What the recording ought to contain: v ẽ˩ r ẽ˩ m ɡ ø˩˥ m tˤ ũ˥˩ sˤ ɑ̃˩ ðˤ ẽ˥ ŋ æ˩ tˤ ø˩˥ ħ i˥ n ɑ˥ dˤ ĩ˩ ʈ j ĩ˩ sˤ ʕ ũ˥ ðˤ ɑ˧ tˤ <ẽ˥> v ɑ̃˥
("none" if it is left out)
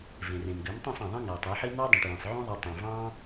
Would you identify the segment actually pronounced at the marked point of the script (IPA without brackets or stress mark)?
ẽ˩